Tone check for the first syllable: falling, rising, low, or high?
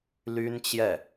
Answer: high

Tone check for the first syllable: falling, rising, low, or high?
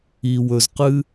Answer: low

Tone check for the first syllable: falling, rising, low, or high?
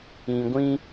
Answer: low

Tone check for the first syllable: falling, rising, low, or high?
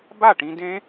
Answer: falling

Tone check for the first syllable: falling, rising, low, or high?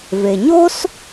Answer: low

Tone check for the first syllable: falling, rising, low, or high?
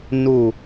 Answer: falling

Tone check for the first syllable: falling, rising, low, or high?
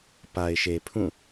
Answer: low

